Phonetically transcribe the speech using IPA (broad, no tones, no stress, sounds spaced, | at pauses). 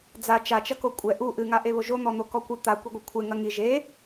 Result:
d͡z a t͡ʃ a t͡ʃ ɐ k o kʷʼ ɛ ʔ u ʔ ɨ ŋ a ʔ e β o ʒ o n̪ ɔ n̪ o k ɔ kʷ ɨ t̪ a kʷ i ɡʷ ɐ kʷʰ e ŋ ɐ ŋ i ʒ e